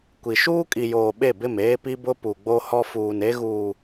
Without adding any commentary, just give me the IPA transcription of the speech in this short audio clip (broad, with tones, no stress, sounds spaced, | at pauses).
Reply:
kʷ i˨ ʃ uː˦ kʼ i˨ j oː˨ ɓ e˦˨ b ɪ˦˨ m eː˦ p i˦ b ʊ˦ p u˨ ɡ͡b o˦ h ɔ˦ f uː˨ n e˦ ɣ uː˨